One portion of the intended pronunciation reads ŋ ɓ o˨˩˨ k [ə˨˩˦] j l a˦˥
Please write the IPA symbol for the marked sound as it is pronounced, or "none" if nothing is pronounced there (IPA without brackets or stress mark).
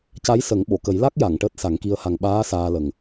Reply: ə˨˩˦